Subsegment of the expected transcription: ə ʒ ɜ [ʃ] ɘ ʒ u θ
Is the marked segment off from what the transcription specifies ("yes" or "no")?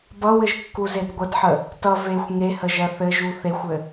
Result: yes